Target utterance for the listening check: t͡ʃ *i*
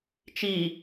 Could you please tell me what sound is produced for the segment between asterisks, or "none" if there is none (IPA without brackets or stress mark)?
i